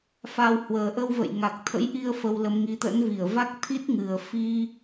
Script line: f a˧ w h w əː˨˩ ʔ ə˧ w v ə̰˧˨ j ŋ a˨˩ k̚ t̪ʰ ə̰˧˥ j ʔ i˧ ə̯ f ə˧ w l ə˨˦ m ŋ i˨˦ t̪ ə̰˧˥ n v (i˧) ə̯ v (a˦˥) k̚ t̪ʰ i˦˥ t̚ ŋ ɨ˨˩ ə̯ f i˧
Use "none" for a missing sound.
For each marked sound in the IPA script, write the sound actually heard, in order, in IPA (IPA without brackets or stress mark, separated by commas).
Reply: i˧˩, a˦˥